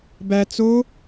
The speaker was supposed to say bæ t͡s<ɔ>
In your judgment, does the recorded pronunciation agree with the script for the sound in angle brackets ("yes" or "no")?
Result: no